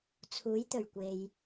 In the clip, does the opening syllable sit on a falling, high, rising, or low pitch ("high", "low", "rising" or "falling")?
rising